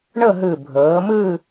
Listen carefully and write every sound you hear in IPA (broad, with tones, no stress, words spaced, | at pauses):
ɳɤ˥˧ɦɯ˧˩ bʱɤː˩˧mɯ˥˧